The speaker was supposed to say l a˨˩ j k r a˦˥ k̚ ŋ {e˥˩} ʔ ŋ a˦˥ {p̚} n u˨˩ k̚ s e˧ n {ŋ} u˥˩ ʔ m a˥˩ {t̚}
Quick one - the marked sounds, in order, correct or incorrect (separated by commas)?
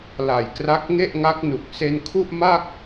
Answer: correct, incorrect, incorrect, incorrect